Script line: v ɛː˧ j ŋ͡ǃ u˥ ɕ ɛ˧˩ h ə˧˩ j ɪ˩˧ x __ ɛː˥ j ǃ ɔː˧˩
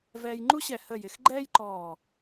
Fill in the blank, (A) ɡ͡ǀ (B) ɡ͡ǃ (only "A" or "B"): B